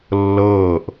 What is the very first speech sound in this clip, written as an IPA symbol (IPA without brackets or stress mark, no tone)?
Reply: lː